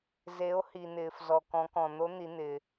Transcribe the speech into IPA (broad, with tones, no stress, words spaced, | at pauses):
ze˩˧o̯ hi˩n̪ɪː˩fzɔ˩ kɔ̃˩˧kɔ̃˩n̪o˧˥ n̪i˩˧n̪ɪː˩